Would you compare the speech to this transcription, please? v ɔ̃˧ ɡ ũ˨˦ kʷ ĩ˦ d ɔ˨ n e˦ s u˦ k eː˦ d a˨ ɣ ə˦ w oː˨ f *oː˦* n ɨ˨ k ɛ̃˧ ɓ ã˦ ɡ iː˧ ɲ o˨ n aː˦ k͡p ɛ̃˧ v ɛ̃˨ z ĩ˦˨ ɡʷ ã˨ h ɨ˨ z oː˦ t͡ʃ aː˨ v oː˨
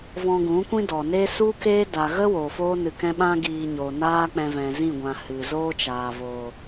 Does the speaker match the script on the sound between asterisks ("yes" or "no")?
yes